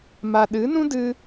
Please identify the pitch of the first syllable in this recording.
low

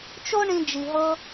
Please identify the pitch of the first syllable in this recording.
high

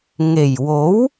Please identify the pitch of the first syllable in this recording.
low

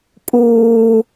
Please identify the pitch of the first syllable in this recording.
high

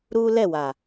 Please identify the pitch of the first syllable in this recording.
high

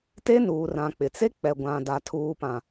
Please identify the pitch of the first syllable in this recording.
high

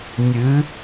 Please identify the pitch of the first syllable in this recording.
rising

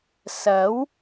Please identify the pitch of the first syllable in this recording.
rising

